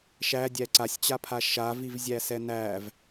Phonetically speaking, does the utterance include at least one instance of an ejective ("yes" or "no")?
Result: no